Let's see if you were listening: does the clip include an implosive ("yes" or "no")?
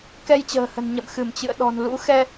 yes